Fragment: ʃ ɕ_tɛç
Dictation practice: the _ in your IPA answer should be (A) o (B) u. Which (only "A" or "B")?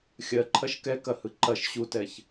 B